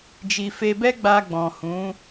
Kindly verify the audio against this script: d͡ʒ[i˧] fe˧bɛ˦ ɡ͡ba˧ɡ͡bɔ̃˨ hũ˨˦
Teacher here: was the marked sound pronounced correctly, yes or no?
yes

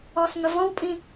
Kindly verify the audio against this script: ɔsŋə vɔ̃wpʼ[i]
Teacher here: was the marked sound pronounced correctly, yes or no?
no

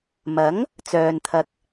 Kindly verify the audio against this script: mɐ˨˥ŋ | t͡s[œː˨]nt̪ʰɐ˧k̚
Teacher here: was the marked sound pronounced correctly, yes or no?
yes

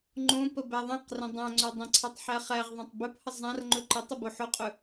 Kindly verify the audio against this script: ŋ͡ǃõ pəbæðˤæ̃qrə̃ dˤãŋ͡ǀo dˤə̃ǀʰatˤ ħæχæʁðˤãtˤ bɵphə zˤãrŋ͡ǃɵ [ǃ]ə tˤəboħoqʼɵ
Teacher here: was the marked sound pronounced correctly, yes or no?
yes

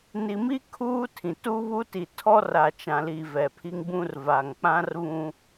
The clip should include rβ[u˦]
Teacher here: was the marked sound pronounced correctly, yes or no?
no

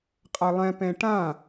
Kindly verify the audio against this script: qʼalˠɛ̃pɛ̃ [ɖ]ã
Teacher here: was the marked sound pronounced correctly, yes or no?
no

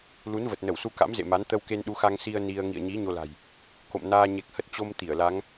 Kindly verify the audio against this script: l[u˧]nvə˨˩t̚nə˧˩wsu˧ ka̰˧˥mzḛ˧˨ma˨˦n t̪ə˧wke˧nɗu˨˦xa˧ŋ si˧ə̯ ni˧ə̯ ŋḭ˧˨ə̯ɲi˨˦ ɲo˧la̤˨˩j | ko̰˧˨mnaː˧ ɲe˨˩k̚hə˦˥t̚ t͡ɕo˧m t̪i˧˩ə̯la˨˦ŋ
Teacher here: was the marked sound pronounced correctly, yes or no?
no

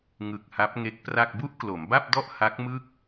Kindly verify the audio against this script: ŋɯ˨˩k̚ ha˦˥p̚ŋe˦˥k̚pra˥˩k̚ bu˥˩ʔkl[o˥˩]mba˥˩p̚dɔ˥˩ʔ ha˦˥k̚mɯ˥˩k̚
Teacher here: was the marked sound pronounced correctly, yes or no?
no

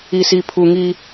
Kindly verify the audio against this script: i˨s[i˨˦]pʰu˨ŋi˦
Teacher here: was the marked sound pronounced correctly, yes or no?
no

